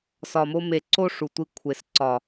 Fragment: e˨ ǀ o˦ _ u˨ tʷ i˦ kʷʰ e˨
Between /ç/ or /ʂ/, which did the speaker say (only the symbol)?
ʂ